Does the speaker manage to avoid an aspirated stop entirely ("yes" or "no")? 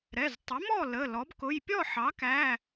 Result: yes